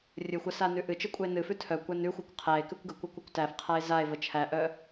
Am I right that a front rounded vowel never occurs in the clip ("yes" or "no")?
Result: no